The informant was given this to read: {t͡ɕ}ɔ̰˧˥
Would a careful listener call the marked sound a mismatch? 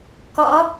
yes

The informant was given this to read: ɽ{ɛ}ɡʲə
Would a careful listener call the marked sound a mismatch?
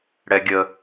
no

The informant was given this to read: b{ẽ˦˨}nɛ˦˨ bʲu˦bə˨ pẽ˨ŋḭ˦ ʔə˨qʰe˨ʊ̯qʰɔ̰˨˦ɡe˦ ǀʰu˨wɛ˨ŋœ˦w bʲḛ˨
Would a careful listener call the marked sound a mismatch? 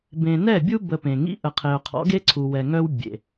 yes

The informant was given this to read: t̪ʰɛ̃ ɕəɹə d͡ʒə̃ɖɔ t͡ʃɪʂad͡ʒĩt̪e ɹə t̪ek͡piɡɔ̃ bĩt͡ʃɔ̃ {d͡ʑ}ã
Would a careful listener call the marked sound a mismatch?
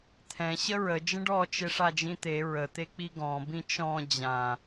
no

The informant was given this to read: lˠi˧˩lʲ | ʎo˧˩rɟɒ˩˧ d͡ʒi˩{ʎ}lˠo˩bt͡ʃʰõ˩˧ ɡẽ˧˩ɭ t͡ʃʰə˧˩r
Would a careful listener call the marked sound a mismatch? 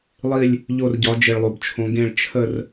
yes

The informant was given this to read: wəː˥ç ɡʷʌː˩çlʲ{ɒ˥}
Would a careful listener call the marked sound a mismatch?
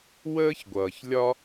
no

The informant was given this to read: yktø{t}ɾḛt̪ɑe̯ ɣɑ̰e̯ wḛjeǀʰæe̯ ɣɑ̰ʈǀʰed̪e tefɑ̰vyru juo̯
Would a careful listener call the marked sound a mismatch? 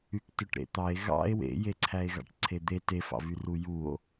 yes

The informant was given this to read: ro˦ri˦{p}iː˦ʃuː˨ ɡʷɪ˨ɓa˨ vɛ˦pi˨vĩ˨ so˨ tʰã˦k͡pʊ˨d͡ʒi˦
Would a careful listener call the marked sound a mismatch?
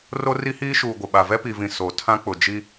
yes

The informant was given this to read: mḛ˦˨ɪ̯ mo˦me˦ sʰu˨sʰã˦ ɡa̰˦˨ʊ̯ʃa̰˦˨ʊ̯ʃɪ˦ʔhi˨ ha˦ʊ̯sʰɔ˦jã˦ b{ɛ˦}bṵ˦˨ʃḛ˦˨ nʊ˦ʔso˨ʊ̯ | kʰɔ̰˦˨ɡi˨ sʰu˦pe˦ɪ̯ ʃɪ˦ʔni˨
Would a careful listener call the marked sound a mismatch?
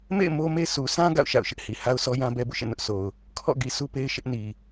no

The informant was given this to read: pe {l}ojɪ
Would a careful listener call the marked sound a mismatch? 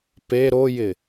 yes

